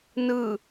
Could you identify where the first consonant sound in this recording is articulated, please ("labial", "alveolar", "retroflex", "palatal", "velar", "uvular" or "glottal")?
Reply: alveolar